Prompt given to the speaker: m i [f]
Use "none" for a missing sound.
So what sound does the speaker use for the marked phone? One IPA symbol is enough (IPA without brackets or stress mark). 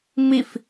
f